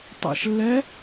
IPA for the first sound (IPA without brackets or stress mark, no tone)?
tˤ